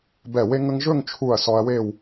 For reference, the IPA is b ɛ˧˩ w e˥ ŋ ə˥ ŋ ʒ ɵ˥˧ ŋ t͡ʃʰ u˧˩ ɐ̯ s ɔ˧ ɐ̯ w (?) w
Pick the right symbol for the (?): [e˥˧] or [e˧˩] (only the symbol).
e˥˧